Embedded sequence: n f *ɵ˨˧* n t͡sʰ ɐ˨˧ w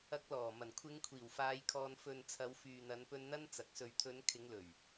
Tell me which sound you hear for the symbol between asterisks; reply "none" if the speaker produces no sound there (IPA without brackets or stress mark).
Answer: ɵ˨